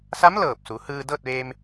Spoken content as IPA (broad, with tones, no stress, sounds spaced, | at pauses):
s a˧˥ m l ɤː˧˩ p̚ s u˩˧ h ɯː˧ d ɤː˥˨ t̚ ʋ eː˧ m